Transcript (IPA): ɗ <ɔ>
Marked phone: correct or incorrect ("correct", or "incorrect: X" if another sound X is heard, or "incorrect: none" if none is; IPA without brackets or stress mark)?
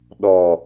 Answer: correct